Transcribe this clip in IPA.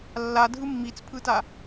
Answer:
lː a dʱ ɯ mː i t͡s pʰ ɯ t a

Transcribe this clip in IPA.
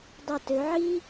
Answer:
dˤ a˧˩ t ø˩˧ ʕ i˥

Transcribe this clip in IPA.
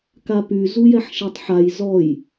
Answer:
k a p y z u j ɛ ħ ʃ e tˤ ħ a j z ɔ j

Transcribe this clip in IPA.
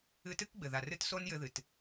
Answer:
ɨ˧ t ɨ˦ k ɡ͡b ɘ˨ ð a˨ r ɨ˧ t s o˦ n j ɘ˧ ð ɨ˨ t

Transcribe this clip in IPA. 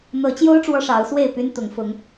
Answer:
n̪ ɤ˨˦ t͡ɕ j o˦ ʊ̯ ʈ͡ʂ w ɔ˦ ʂ ɑ˨˦ ʊ̯ s w e˥˨ ɪ̯ p y˦ n t̪ ʊ˨˦ ŋ f ʊ˨˦ ŋ

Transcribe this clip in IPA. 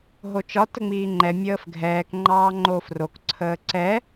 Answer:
ɦ o t͡ʃ ɒ t ə ŋ͡m iː ŋ͡ǃ ɛ mʲ əː f ɡʱ ɛː k ŋ͡ǃ ɑː ŋ͡ǃ oː f r o k ǀʰ əː ǀ ɛ

